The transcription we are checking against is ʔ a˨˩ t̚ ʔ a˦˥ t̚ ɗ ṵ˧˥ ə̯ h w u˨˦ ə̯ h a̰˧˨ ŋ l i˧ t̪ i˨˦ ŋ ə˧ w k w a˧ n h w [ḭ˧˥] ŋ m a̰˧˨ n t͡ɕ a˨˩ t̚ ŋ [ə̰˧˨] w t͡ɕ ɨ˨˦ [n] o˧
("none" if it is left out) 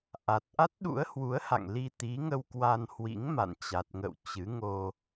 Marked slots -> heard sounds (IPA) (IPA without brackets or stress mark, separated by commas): ḭ˧˥, ə̰˧˨, ŋ